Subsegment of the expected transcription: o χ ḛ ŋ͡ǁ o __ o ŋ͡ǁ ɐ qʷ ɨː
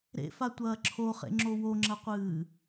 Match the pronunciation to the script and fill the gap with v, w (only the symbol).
w